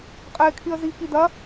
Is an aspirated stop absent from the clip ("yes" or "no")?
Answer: no